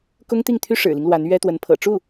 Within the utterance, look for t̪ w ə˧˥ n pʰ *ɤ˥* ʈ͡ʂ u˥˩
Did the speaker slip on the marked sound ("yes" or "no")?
yes